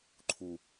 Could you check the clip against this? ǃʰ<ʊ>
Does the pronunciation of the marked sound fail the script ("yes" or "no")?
yes